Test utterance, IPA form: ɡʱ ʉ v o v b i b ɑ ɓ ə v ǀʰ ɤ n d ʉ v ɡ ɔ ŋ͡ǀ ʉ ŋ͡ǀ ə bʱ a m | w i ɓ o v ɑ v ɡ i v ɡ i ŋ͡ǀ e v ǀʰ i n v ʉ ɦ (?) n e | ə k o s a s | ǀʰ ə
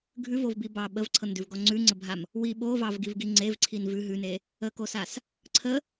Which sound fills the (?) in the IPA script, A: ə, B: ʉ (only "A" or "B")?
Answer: B